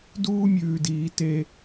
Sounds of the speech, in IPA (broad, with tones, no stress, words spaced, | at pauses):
duː˦mʲʉː˧diː˧ te˦